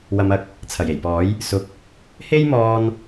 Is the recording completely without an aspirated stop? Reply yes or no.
no